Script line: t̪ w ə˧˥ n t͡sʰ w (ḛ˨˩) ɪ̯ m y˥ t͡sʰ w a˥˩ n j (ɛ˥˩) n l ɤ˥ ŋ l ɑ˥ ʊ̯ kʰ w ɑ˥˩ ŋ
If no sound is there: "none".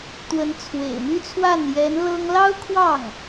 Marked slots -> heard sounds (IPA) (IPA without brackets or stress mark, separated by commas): ḛ˨˩, ɛ˧˥